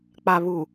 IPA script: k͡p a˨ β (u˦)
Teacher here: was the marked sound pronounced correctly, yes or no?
no